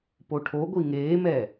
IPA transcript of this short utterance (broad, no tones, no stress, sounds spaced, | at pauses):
p o ʈʰ o ɡʷ i ŋ eː m ɛː